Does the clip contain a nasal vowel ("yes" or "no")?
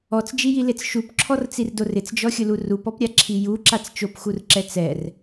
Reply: no